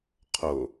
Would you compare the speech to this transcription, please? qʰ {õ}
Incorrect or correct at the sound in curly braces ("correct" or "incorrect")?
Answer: incorrect